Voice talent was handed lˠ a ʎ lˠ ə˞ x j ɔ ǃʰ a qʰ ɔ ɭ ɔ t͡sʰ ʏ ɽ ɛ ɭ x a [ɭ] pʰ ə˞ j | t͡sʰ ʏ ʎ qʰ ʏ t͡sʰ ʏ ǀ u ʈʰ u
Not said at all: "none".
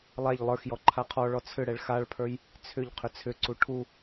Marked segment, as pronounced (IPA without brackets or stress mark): ɭ